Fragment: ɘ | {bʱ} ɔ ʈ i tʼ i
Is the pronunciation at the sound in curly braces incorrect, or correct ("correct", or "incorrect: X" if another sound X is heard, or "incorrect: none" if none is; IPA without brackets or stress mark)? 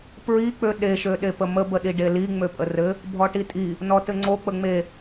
correct